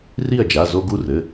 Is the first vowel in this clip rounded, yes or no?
no